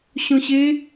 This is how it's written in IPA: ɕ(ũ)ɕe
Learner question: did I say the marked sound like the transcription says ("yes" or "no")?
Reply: no